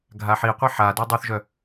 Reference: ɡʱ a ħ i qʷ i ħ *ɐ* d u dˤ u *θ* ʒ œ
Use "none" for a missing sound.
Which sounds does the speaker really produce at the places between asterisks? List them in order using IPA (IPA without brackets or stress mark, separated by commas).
a, θ